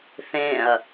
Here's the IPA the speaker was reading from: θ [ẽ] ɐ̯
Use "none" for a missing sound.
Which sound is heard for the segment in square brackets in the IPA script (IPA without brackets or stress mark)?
ẽ